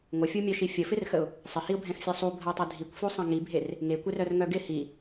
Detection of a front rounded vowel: present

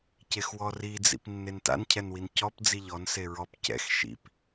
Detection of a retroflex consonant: absent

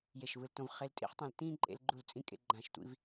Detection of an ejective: present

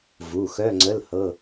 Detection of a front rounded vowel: present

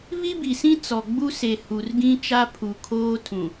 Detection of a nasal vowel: present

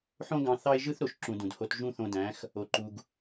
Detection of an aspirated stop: absent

